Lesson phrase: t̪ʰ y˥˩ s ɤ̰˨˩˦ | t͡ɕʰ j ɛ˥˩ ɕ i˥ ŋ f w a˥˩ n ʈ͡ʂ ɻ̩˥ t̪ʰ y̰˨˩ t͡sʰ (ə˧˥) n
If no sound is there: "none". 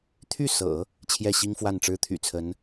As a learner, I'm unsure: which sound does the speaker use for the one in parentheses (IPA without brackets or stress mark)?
ə˧˥